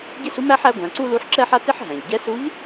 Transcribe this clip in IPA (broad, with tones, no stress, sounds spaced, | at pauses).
ɟ ɪ˥ s u˧˥ m æ˥ ħ æ˧˥ ɡʷ æ̃˩˧ ǀ u˥ l u˧˥ ħ ǁ ɛ˥ ħ a˥ t ɪ˥ ħ ɦ æ̃˩ ʎ ɟ ɛ˧˥ s u˧˥ ʎ